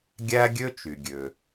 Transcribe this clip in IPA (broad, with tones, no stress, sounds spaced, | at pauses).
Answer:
ɡʲ æ˥ ɡʲ ø˥ t͡ʃ y˩ ɡʲ ø˩